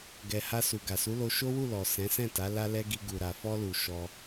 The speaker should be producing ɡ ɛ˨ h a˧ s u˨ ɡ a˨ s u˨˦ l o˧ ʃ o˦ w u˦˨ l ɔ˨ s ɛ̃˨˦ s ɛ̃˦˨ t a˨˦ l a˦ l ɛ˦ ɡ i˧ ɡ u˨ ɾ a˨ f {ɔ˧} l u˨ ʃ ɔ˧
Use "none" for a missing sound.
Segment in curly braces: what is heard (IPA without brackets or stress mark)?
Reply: ɔ˧